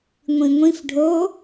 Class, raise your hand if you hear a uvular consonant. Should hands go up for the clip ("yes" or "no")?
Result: no